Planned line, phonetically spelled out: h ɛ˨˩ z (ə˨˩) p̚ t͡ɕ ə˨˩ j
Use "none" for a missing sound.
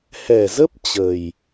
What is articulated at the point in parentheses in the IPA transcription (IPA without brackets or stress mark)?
ə˦˥